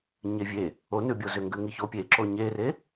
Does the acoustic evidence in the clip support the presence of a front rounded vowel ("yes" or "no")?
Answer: yes